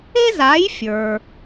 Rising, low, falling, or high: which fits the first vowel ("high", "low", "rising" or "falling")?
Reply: high